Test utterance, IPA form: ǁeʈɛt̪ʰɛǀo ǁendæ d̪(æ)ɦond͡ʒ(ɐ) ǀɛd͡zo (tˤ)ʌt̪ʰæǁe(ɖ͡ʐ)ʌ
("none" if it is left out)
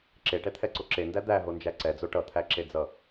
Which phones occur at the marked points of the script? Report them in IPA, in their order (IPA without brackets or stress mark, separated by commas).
æ, æ, ʈ, d͡z